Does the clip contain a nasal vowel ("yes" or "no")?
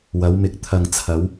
no